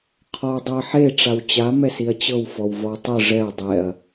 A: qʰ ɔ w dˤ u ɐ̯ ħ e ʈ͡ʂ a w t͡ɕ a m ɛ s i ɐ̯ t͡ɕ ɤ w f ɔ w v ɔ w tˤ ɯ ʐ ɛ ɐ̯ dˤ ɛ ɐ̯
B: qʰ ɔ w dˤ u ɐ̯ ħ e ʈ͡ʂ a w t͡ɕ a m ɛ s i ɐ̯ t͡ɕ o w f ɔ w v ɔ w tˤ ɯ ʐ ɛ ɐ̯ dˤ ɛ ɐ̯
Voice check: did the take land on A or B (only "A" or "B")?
A